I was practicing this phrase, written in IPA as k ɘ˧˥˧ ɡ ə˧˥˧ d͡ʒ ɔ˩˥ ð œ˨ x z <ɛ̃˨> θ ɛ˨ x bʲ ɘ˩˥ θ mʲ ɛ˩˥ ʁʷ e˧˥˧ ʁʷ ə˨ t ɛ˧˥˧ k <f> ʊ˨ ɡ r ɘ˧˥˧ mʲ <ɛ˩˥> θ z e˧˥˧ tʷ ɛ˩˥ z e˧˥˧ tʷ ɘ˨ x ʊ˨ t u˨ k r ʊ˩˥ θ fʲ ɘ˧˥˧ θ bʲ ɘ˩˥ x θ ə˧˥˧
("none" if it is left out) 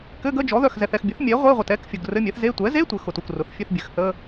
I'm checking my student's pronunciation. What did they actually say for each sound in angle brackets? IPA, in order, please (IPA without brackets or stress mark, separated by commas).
ɛ˨, fʲ, ɛ˩˥